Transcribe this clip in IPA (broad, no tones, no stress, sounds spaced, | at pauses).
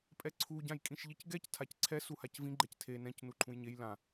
pʼ ɛ ǀʰ u ɟ ã j kʼ ĩ ʃ ʎ i c ɡ ɛ c tʰ a c ǀʰ ɛ s u h a c v ĩ ɡ͡ǃ ɛ c tʰ e n ɛ̃ c n u ǃʰ ũ j ɲ e j l ã